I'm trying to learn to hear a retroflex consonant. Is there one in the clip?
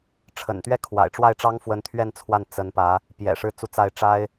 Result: yes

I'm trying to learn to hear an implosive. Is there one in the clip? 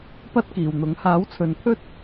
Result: no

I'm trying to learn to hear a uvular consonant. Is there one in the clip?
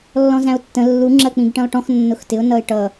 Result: no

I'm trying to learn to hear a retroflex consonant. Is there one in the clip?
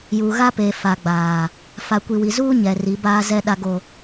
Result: no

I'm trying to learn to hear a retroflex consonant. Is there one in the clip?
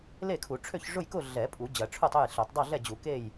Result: yes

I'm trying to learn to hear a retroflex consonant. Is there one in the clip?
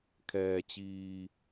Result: no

